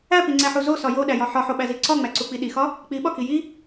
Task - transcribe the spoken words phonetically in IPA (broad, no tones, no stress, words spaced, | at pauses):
æpiŋ͡ǀæħu zosɒ joɗæjɒ ħɒħoɓæzi ǀɒŋ͡mæǀuk͡pi ɗixɒ | k͡piɓɒki ji